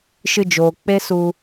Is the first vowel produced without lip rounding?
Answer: yes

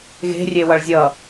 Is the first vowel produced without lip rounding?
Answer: yes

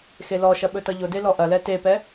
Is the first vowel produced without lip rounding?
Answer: yes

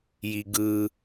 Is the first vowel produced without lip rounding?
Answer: yes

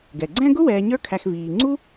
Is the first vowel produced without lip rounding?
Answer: yes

